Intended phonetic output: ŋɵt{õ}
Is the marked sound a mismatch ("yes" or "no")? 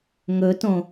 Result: no